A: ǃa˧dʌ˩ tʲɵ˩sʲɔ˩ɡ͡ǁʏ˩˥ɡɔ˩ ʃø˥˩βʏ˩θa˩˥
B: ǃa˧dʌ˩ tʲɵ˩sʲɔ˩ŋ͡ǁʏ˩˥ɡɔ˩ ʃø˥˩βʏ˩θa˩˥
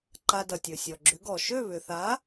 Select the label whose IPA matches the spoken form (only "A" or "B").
A